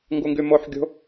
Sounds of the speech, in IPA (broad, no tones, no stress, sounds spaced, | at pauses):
ŋ ɡ u ŋ ɡ y m o ħ ɡʲ o̤